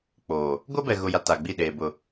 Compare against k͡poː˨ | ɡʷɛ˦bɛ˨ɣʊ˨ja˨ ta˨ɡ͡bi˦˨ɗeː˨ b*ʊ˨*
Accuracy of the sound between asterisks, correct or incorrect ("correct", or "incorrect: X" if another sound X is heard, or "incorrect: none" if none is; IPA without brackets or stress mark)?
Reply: correct